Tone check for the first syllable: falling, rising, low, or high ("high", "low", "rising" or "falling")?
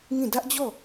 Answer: falling